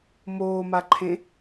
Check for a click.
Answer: present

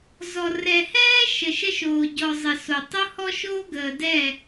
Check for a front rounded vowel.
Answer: absent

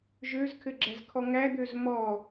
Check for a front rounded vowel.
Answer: present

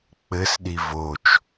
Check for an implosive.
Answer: present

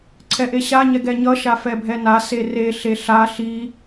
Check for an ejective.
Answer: absent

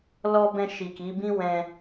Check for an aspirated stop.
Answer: absent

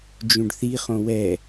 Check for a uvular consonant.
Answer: present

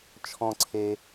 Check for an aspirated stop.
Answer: present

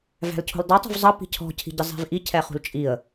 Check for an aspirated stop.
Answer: present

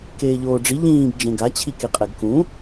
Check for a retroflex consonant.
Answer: present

